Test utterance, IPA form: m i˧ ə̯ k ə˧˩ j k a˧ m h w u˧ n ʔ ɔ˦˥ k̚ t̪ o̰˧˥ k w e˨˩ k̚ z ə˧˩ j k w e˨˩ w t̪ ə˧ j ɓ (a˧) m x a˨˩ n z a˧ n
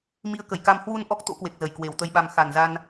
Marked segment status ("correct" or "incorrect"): correct